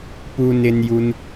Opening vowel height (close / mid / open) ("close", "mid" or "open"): close